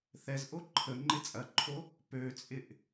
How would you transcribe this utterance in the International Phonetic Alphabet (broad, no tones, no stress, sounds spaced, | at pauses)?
θ ɛ z ʔ o ǃʰ ə ŋ͡ǃ ɪ t͡sʼ ɐ ǃʰ o | p ø t͡sʼ ɪ ʔ